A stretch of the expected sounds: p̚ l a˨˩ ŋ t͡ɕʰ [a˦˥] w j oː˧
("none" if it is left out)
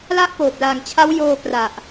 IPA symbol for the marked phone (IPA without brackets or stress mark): a˦˥